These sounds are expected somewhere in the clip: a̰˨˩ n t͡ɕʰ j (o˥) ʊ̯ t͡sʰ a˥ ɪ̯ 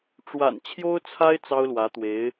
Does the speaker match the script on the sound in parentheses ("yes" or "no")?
yes